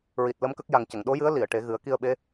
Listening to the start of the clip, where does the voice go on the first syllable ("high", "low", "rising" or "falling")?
low